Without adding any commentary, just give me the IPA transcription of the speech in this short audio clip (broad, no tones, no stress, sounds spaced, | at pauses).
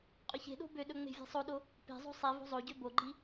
qʼ ɵ ç e̤ ɗ o̤ b ø ɗ ɵ ŋ͡m e̤ vʲ e̤ sˤ o ɗ o | p e̤ zˤ o̤ sˤ i v o̤ zˤ o ɟ ø b o ɡ͡ǃ i